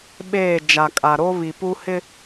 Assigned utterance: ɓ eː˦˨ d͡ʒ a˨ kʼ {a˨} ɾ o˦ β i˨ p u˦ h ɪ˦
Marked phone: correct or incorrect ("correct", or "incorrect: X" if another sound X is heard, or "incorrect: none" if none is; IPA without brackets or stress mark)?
correct